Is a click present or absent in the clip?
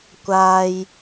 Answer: absent